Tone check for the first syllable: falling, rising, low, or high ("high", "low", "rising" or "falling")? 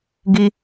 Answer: high